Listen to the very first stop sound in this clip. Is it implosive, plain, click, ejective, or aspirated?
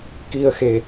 plain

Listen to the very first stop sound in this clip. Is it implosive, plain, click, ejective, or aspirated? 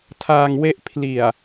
aspirated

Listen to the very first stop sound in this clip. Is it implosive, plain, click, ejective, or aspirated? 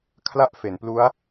aspirated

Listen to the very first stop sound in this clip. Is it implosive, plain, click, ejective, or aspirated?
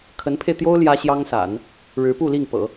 aspirated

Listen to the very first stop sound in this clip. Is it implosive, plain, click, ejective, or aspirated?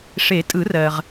ejective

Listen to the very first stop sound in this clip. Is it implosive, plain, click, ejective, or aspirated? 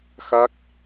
plain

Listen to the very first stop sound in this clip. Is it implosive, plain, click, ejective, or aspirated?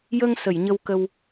plain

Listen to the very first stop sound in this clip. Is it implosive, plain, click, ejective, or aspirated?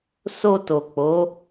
plain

